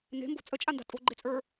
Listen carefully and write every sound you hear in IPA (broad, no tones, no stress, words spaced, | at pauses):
ne̤mbo̤ t͡sʼət͡ʃʼanda̤ tʼo̤ɡ͡ǃet͡sʼə˞